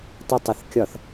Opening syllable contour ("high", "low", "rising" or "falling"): high